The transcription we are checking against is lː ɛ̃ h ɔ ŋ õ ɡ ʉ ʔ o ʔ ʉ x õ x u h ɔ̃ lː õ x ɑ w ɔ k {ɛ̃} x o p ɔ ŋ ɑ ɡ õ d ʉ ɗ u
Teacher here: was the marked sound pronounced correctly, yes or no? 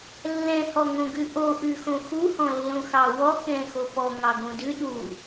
yes